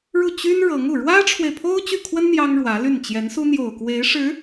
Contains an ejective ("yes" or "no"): no